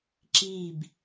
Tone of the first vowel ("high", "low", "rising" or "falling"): falling